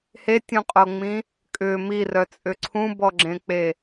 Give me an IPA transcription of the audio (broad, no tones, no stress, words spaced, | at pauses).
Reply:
hetʲũqʼoŋ͡mĩ | kʼʏ mirœt͡sʼʏ ǀʰũbɔɡ͡ǁẽk͡pe